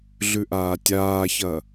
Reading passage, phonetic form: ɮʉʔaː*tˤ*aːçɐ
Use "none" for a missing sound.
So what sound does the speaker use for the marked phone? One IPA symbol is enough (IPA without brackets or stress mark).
tʲ